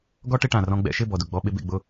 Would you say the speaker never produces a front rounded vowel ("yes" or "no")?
yes